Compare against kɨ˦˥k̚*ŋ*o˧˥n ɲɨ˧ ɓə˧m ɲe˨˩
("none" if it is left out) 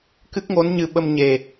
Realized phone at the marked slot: ŋ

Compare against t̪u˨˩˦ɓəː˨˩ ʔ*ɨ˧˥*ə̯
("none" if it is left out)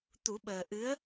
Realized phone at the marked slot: ɨ˧˥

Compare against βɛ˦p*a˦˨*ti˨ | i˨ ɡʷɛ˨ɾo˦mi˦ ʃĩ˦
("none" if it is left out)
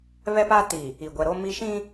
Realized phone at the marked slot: a˦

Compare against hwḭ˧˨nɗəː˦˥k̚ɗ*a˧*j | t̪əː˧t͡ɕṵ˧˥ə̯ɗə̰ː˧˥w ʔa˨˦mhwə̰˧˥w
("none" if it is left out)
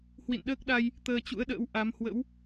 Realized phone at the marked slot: a˧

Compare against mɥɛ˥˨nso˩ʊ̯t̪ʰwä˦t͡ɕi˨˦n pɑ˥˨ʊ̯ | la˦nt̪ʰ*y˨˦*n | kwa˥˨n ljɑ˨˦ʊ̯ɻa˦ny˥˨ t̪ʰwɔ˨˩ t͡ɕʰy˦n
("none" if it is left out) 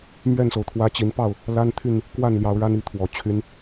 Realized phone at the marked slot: y˥˨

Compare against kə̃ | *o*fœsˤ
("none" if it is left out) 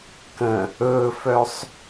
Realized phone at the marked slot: ɵ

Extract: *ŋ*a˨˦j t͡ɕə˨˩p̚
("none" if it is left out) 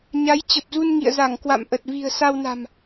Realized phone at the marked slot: ɲ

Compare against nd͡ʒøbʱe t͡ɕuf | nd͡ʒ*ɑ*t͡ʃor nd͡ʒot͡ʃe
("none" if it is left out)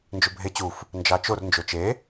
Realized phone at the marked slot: ɑ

